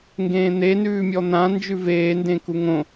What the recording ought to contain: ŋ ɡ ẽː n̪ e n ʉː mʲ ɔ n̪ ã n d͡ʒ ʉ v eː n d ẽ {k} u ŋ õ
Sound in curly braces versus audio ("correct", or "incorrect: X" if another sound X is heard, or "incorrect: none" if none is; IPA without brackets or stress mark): correct